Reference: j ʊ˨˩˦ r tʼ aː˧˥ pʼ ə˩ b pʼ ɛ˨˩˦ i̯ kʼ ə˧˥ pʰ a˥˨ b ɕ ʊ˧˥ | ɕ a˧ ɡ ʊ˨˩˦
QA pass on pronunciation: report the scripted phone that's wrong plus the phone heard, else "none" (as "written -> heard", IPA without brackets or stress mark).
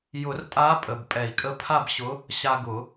none